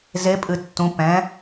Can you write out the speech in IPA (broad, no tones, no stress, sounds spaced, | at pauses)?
z e pʼ ɨ tː ũ p ɛ̃